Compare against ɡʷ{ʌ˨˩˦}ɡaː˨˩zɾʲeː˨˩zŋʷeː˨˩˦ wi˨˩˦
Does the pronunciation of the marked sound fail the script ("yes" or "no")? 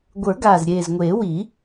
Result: yes